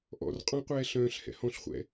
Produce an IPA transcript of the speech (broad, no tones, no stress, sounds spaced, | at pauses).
ʔ ɔ̰ r qʼ ɔ̃ qʷ ɛː ɬ œ̃ː ɬ h ɛ̰ h ɔ̃ ɬ χʷ ɛ̰